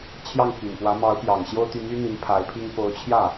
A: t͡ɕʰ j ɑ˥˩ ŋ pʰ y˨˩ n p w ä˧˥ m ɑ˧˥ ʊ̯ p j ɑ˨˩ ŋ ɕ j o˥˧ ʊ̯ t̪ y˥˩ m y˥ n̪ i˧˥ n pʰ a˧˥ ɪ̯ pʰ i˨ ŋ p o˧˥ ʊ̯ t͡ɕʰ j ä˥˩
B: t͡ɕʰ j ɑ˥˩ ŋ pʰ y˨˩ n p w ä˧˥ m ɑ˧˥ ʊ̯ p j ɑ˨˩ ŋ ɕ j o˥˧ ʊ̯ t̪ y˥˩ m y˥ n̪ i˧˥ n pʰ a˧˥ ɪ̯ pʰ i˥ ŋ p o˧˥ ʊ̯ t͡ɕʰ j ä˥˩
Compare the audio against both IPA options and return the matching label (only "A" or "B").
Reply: B